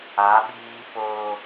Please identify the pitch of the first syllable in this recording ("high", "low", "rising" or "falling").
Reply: rising